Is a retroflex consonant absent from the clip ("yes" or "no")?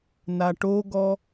no